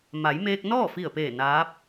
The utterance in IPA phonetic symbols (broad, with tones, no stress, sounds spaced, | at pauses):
m a˩˧ j m eː˧ k̚ n ɔː˥˨ f i˧˩ ə̯ p eː˧˩ n aː˧˥ p̚